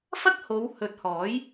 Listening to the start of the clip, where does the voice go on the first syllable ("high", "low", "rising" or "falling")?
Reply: high